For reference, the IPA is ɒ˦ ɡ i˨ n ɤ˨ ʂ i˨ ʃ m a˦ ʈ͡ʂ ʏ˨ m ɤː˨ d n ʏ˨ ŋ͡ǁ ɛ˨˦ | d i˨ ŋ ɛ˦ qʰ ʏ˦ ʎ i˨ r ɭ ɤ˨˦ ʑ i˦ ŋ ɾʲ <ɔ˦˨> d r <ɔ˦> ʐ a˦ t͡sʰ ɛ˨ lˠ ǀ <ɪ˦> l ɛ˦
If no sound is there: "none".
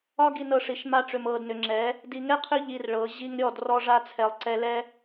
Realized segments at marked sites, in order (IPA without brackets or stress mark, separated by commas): ɔ˦˨, ɔ˦, ɛ˦